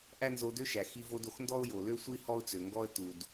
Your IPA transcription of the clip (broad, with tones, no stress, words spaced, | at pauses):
ʔæ˥nzo˧dø˥ʃæ˩ xi˧vo˧do˩xndɔ˥ʊ̯ jo˩lø˥sʷi˥ hɔ˥ʊ̯t͡sø˩ŋɡɔ˥ə̯ tu˩d